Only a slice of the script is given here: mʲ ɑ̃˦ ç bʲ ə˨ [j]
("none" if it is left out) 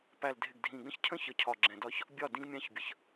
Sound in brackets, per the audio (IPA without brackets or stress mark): ç